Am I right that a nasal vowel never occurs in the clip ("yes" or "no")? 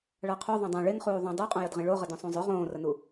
no